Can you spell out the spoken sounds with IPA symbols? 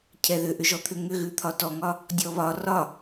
cʰ ɛ ð ʏ ʔ ʏ ʒ ɔ t̪ʰ ʏ ŋ ʏ ɣ ʉ t̪ʰ ɒ t ɔ ŋ ɒ | dʲ ɔ β ɒ r ɒ

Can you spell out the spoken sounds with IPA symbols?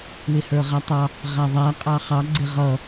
w ɪ h ə˞ ʁ æ tˤ ɑ | ʁ æ ðˤ æ qʼ ɑ χ ɑ ɡ͡ǀ ɪ ʁ ʌ

